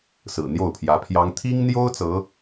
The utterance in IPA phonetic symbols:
s ɹ̩˨˩ n̪ j o˥˩ ʊ̯ pʰ j ä˧˥ pʰ j ɑ˥ ŋ t̪ʰ i˥ ŋ n̪ j o˥ ʊ̯ t͡s ɤ˧˥

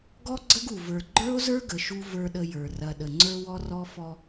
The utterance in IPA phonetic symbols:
ɡ ɔ˦ ɡ͡ǀ ə˦ ɡ u˨ v ə˞˨ ɡ͡ǃ ə˞˦ o̯ z ə˞˦ ɡ ə˨ ʃ u˦ v ə˞˦ ɗ ə˦ j ə˞˨ r ɐ˨ ɗ ə˨ ŋ͡ǀ ə˞˦ w ɔ˦ r ɔ˦ f ɔ˦

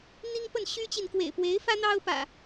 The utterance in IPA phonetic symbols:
n̪ i˦ ŋ p ə˥˨ n ɕ y˦ t͡ɕ i˨ n k w ḛ˨˩ ɪ̯ p w e˨˦ ɪ̯ f ä˦ n̪ ɑ˦ ʊ̯ p ä̰˨˩

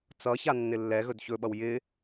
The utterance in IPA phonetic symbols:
t͡s ʌ ç a nː ɪ lː ɛ ɣ ɵ d ç ɵ ɓ ʌ w j ɪ

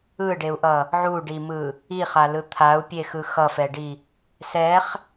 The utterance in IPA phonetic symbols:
ɯ ɖ e u̯ ʔ ʌ | ʕ u ɖ i m ɯ | i χ a l ɯ t̪ʰ a u̯ pʲ e x ɯ x ʌ f ɛ ɖ i | s ɛ χ

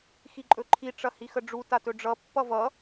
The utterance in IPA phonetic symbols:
x i ǃʼ ɵ ǃʰ i ʈ͡ʂ ɐ h i x ə ɖ͡ʐ u t a t ɵ ɖ͡ʐ ʌ pː ʌ v ʌ

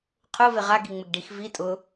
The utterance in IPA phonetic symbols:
qʰ ʊ v ɪ ʁ a ɡ i ŋ͡m ɪ ɡ ɖ i x v i tʼ ʊ

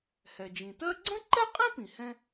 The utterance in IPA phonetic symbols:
h ɛ˩ d͡ʒ ĩ˩ t ɜ˥ ɡ͡ǀ ə̃˥ ǃ ɛ˥ qʼ ĩ˥ p ĩ˩ h ɛ̃˥

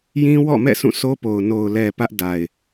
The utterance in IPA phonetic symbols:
j ĩ˦ w ɔ̰˦˨ m ɛ̰˦˨ s ũ˦˨ sʰ o˦ p o˨ ʊ̯ n o˨ ʊ̯ l ɛ˨ p ä˦ ʔ d a˨ ɪ̯

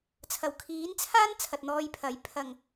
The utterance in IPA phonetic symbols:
t͡sʰ ɐ˨˩ w kʰ iː˨˥ n t͡sʰ aː˥ n t͡sʰ ɐ˨ t̚ n̪ ɔː˧ j pʰ ɐ˨˥ j pʰ ɐ˨˩ ŋ

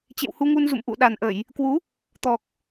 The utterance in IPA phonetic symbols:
t͡ɕ ḛ˧˨ w h u˧ ŋ u˧ n z ṵ˧˨ m ʔ ṵ˧˨ ɗ a˨˩ n ʔ ə˧˩˨ j | k w u˨˦ | t̪ ɔ˨˩ k̚

